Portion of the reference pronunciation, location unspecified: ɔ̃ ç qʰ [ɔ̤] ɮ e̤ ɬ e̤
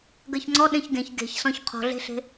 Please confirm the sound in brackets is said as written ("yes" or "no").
yes